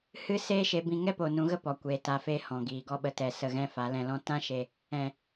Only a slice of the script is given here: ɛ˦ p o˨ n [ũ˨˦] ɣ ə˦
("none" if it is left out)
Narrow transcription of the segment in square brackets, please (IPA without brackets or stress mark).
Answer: ũ˨˦